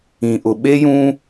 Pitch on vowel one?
low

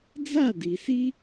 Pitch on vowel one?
falling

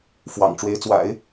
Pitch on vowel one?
low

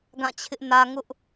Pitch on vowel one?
falling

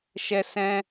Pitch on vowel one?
high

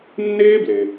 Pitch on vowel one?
high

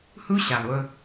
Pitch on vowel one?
high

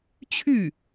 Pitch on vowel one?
falling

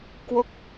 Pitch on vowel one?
falling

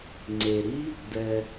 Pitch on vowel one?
low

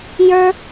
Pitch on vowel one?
high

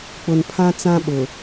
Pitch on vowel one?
low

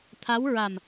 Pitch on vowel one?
rising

